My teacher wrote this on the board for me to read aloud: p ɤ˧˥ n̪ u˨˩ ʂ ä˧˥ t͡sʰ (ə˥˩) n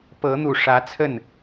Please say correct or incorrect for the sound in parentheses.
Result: correct